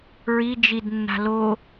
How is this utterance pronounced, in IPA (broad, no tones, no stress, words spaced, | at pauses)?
ɹi d͡ʒidnːa̤ lo